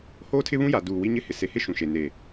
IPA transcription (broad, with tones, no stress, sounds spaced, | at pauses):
h oː˦ tʰ ɪ˦ β ũ˦ j a˨ d uː˨ w i˦ ɲ ɪ˦ h ɪ˨ s e˨ h ɪ˦ ʃ ũ˨ ʃ e˨ n eː˨